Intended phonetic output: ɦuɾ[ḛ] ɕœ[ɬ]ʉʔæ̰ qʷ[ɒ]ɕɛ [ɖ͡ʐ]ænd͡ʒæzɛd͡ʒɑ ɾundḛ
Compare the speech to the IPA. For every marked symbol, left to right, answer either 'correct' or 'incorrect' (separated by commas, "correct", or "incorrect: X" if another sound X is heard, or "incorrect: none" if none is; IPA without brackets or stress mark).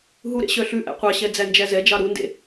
correct, correct, incorrect: ɑ, incorrect: d͡z